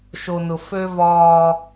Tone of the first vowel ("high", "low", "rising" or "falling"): low